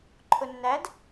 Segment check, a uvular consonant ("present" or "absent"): absent